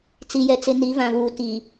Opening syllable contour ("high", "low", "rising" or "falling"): low